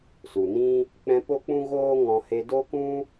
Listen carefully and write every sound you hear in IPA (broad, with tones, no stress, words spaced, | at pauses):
su˨nĩ˦ | k͡pɛ̃˧po˦k͡pũ˦ɣoː˦ ŋɔ̃˧ he˧do˦kũ˦